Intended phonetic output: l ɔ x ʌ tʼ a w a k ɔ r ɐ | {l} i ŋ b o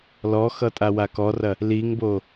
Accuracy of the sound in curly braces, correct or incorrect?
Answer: correct